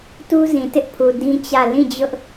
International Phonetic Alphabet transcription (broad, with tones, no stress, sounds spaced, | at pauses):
t u˦ z ĩ˨ t ɪ˦ ʔ pʰ u˨ d ĩ˦ t͡ɕ ä˦˨ l ĩ˦˨ d͡ʑ ʊ˦ ʔ